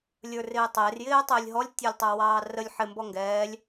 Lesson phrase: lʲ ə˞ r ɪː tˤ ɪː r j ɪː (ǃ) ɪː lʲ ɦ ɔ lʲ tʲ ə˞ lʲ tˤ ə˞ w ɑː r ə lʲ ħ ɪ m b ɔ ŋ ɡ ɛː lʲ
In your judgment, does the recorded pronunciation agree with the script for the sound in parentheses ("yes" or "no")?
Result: no